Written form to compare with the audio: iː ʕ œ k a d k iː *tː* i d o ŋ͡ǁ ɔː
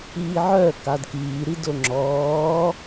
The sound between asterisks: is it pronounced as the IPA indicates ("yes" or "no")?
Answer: no